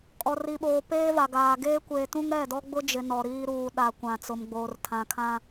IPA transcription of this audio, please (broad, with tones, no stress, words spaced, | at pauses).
kʼɔ˨ri˨ɓoː˨ peː˦va˨ɡaː˨ ɡeː˦kʷeː˨tũ˦ŋ ɾɛ˦˨dɔ˦ɡ͡bʊ˦d͡ʒɪ˨ nɔ˨ɾiː˦ ɾuː˨ɗa˨ kʷã˨t͡sʊ˨mɡ͡boː˨r tʰã˨kʰã˦